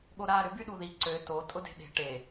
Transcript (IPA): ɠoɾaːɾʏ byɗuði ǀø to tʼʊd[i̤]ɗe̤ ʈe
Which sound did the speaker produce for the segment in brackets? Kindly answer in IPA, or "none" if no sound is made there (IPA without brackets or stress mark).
e̤